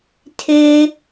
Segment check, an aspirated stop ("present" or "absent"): present